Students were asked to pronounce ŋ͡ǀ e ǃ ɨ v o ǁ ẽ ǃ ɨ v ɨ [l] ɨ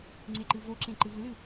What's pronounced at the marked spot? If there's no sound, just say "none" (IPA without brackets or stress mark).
l